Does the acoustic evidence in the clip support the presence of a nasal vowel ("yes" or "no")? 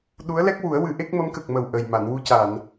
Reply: no